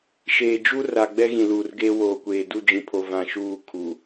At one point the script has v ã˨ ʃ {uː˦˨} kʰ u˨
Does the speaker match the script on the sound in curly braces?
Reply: yes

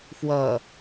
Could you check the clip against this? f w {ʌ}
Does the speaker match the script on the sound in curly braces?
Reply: yes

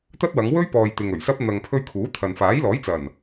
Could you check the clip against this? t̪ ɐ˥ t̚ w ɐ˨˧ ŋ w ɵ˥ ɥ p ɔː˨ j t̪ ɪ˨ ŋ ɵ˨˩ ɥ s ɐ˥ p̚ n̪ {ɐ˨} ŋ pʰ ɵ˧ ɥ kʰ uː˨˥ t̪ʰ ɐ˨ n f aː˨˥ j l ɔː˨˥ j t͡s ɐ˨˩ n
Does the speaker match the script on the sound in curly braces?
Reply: yes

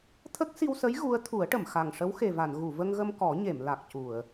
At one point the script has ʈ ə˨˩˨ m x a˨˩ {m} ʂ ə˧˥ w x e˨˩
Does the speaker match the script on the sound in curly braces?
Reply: no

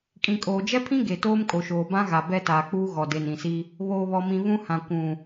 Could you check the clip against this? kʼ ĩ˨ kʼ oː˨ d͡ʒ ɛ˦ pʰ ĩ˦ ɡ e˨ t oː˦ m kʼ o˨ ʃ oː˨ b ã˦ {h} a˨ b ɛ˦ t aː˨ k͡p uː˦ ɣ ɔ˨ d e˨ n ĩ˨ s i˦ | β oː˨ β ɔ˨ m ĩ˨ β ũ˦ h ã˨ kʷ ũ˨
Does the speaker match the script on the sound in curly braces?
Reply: no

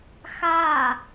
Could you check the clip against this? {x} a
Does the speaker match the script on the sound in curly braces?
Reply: yes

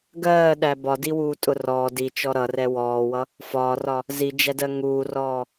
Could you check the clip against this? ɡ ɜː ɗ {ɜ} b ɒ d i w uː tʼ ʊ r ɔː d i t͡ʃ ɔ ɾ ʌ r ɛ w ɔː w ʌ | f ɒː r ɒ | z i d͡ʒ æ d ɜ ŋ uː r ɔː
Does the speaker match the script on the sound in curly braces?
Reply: no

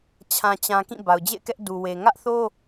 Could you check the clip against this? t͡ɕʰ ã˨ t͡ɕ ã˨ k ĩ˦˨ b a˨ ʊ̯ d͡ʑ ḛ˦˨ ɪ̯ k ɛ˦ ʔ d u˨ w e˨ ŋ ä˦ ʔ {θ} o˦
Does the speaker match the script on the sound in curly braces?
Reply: yes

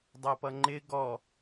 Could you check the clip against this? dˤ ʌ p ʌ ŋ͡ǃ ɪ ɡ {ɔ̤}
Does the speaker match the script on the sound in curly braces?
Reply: no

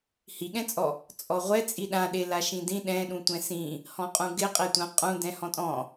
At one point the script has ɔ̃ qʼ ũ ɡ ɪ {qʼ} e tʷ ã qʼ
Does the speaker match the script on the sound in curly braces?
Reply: yes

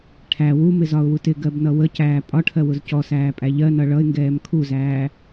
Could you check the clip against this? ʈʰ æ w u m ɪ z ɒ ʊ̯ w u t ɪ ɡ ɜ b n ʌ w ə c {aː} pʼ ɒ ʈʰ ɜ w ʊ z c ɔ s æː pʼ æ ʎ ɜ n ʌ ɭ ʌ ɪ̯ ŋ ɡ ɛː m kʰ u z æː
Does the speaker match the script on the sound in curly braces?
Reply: no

